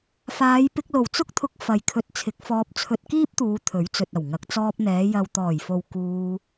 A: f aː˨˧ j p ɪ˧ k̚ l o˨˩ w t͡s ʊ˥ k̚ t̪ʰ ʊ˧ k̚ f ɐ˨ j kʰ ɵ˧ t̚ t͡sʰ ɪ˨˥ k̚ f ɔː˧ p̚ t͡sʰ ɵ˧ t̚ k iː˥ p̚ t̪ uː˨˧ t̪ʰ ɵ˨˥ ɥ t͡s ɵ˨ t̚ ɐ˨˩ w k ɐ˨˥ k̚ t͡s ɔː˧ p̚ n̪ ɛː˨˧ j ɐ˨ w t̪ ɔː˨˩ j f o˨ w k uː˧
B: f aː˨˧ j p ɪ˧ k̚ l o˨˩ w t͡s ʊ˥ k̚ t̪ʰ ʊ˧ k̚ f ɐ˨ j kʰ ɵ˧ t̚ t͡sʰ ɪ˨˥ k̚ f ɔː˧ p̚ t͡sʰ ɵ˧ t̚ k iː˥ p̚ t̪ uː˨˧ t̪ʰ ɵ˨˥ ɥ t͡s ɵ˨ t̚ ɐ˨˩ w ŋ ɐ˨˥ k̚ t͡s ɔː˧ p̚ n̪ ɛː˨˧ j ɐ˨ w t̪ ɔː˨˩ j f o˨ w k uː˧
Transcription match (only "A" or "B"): B